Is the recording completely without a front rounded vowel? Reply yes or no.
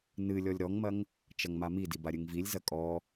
yes